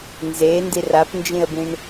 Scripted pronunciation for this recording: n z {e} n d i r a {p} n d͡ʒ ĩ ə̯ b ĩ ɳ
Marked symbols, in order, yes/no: yes, yes

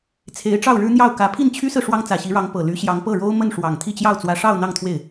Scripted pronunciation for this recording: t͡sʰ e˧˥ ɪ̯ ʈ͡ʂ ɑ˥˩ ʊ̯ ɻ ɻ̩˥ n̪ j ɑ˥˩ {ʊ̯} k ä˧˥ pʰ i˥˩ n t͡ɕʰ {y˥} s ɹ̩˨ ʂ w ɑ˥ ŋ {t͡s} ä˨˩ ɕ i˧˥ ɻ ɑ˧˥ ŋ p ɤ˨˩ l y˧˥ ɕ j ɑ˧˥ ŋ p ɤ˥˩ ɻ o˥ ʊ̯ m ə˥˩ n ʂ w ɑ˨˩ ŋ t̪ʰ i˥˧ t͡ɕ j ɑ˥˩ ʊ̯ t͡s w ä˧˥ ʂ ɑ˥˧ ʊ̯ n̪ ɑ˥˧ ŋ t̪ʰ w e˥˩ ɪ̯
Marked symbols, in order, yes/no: yes, yes, yes

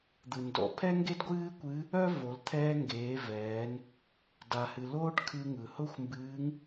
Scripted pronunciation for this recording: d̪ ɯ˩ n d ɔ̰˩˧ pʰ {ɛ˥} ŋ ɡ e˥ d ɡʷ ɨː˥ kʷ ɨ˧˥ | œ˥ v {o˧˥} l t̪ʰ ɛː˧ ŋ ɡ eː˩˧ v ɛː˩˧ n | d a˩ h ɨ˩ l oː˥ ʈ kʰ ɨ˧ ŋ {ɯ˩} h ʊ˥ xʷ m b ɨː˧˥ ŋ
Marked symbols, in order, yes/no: yes, no, yes

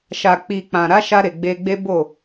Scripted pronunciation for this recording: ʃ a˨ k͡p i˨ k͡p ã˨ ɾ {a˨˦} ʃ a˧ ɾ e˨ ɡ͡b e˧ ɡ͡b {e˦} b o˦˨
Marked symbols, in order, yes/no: yes, yes

